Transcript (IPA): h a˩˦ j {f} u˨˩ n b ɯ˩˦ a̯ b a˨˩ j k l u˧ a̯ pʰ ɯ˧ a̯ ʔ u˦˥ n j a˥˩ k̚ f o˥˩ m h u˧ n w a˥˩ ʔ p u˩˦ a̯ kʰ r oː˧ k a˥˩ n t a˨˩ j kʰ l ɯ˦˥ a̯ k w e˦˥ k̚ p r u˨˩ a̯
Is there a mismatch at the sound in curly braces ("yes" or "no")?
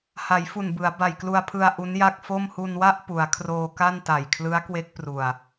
no